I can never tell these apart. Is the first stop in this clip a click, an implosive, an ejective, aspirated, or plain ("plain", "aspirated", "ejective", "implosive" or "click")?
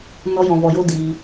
plain